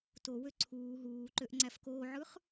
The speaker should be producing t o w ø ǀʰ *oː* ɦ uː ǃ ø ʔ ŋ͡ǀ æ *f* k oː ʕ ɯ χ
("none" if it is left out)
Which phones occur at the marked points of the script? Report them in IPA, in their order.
uː, f

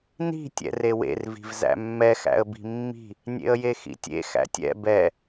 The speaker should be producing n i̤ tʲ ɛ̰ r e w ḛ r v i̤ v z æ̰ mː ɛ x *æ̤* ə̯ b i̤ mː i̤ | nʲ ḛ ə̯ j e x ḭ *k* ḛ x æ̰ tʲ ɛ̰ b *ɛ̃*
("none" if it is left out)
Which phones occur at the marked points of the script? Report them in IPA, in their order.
æ̰, tʲ, ɛ

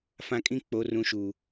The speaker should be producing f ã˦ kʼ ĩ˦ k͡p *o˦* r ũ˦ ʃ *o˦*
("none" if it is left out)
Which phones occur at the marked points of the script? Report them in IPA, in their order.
o˦, u˦

